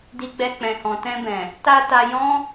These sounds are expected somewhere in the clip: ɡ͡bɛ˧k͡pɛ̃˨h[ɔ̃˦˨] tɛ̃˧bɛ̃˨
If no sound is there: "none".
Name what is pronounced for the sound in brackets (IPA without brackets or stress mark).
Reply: ɔ̃˨